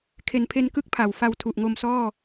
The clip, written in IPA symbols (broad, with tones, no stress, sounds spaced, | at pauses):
kʰ e˩˦ n pʰ e˧ n k ɯ˥˩ k̚ pʰ a˩˦ w f a˧ w tʰ u˨˩ ʔ ŋ o˧ m s ɔː˥˩